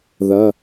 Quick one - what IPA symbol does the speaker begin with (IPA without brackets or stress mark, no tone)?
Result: ð